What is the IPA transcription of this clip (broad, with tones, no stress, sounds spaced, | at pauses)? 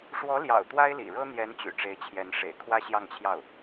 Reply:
ʂ w ɔ˧˥ l j ɑ̰˨˩ ʊ̯ t̪ w a˥ ɪ̯ l ḭ˨˩ ɻ ɤ˥ n̪ j ɛ˧˥ n t͡ɕ y̰˨˩ ʈ͡ʂ e˧˥ ɪ̯ t͡ɕʰ j ɛ˧˥ n ʂ ḛ˨˩ ɪ̯ kʰ w ä˥ ɕ j ɑ˥˧ ŋ t͡ɕʰ j ɑ˥˩ ʊ̯